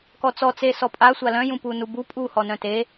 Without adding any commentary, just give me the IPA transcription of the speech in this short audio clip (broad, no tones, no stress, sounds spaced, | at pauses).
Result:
k ɔ t͡s ɔ t͡s e s ɔ pʼ a sʷ a l œ̃ j ũ p u n u b u pʼ u h ɔ n œ̃ t e